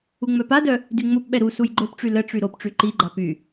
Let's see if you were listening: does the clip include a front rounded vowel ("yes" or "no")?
yes